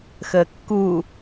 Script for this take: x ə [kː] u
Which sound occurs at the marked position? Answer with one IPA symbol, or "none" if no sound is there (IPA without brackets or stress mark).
kː